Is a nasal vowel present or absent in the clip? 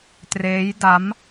absent